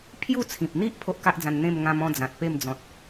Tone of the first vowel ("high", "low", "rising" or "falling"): falling